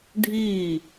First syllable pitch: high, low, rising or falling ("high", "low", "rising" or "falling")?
falling